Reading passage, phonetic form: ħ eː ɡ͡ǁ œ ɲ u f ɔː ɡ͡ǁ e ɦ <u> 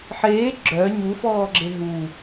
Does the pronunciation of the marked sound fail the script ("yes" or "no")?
no